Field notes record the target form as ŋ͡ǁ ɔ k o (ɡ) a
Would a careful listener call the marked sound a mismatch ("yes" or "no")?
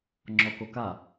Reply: yes